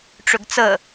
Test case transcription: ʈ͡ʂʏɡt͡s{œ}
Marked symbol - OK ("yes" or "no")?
no